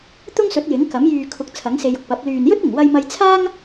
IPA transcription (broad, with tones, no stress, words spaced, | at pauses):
t̪ʊ˥ŋsɵ˨˥t̚ jɪ˨˥ŋkɐ˨˥m jyː˨ kʰʊ˨˥k̚ t͡sʰɐ˨˥ŋse˧jʊ˨k̚pɐ˨˥p̚ lyː˨njɵ˥t̚ɪ˨˩ŋ wɐ˧jmɐ˧jt͡sʰaː˥ŋ